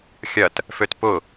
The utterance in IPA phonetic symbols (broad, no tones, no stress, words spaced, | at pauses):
xʲɐt | føtpʊ